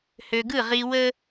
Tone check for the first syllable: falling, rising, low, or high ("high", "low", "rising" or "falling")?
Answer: low